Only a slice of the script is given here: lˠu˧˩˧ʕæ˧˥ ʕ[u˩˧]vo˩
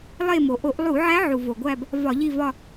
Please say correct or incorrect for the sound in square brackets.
incorrect